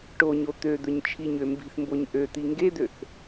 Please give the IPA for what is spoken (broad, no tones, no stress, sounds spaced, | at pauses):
ʈ o ɲ o t̪ ø d̪ ɵ ɲ t͡ʃʰ i ɲ ø m b i̤ θ m b o ɲ ʔ ø t̪ i ŋ ɡ e d̪ ø θ